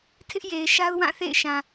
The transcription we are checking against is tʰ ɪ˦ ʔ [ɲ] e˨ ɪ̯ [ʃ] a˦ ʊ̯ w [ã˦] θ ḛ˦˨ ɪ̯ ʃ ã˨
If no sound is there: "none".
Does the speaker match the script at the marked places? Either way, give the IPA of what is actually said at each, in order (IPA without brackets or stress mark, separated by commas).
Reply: j, ʃ, ã˦˨